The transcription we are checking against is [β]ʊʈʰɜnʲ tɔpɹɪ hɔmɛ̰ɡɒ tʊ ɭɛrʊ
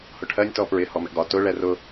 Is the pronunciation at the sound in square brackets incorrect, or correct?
incorrect